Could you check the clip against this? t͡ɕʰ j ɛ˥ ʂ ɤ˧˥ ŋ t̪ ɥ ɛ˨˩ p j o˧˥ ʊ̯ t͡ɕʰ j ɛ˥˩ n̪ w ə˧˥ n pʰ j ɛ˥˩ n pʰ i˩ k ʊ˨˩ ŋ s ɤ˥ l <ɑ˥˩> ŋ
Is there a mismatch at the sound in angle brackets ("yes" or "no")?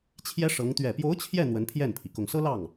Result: no